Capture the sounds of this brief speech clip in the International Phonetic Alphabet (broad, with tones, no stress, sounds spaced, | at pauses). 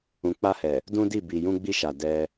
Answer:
ũ˨ k͡p a˧ h ɛ˨ | d ũ˦ d i˦˨ b i˨ j ũ˧ ɡ͡b i˧ ʃ a˨ d ɛ˧